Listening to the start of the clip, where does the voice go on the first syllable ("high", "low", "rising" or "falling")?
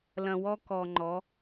low